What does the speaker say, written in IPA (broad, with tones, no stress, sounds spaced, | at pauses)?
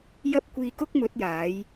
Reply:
j ɐ˥ p̚ kʷ iː˧ k ʊ˥ k̚ m ɵ˨˥ t̚ j aː˨˥ j